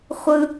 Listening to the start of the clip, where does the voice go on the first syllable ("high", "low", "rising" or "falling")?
high